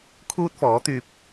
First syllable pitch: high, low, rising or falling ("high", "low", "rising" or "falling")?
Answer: high